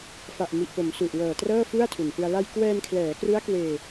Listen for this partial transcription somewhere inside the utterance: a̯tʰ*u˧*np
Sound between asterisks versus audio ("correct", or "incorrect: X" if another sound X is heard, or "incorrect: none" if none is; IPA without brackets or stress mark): incorrect: u˨˩